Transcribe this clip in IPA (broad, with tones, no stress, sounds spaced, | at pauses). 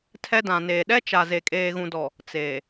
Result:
tʰ ɛ˦ d ã˨ n eː˨ ɗ ɛ˦ t͡ʃ a˨ z e˨ kʼ eː˨ ɣ ũ˨ d ɔ˨ | t͡s eː˨